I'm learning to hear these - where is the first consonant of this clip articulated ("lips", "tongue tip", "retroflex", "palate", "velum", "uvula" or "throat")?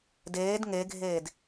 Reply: tongue tip